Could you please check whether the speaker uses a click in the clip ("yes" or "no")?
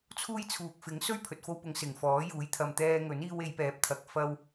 no